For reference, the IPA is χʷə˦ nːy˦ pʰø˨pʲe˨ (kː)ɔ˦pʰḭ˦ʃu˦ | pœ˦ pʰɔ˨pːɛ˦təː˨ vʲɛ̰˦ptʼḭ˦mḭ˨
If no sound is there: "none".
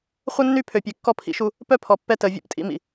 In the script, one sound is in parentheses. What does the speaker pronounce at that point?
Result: kː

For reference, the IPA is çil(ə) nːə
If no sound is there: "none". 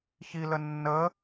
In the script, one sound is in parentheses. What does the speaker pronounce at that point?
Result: ə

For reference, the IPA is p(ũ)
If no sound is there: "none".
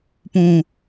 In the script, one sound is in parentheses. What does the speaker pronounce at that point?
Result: ũ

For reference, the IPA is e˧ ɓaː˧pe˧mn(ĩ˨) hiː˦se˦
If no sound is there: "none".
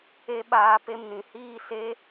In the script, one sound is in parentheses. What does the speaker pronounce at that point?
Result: ĩ˨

